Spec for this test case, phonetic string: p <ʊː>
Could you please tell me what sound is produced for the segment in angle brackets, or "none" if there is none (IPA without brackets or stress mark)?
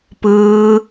ɯː